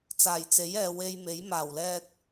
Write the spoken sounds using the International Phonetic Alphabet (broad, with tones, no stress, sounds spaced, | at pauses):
t͡s aː˨˩ j t͡s e˨˥ j ɛː˨ w e˧ j m e˨˥ j m aː˨˩ w l ɛː˧ t̚